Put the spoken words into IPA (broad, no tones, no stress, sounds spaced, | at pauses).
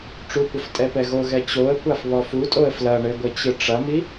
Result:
ʈ͡ʂ u kʷ ɐ f tʼ ɛ p ɛ ɣ o ɣ ɛ t͡ɕ o ə̯ kʷ a f β ɔ f u tʼ o ə̯ f l ɐ ɳ ɘ ɡʷ ɘ t͡ɕ ɨ ʈ͡ʂ ɐ m i